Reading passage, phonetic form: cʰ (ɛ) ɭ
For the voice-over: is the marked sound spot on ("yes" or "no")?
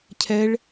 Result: yes